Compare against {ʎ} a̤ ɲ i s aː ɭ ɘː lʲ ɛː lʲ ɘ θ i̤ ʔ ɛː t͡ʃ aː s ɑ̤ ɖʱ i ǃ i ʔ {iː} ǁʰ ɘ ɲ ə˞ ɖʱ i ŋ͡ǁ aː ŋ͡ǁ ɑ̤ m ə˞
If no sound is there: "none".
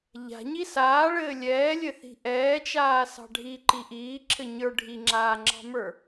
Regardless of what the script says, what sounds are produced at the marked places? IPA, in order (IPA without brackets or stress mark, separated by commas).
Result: ʎ, iː